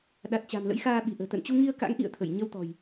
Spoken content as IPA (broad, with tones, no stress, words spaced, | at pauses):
ɗa˨˩t̚t͡ɕa̤˨˩mlə̰˧˥j xaː˧ɓi̤˨˩ʔə̤ː˨˩ t̪ə̰˧˨nt͡ɕu˧ŋi˧ə̯ka̰˧˥ŋ ʔḭ˧˨ə̯t̪ʰə˧˩j ɲə˧wt̪ɔ̤˨˩j